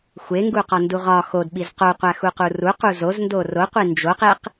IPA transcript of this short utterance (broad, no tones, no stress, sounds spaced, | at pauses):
xʷ e ŋ ɡ u q ɒ n d u ʁ ɒ x o d ɓ i z q o qʷ æ x u q u r u q u z o z n d o r o qʷ i n d͡ʒ o q e q